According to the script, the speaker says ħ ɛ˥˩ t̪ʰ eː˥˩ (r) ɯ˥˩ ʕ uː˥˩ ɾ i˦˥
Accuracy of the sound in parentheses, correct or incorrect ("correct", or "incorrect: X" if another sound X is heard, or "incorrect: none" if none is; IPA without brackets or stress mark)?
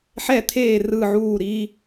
correct